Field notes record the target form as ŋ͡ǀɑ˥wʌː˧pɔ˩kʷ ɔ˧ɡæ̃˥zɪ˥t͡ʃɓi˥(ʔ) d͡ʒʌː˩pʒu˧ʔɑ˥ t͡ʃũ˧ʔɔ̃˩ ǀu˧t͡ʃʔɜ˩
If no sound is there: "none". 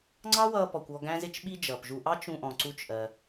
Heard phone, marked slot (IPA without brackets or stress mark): none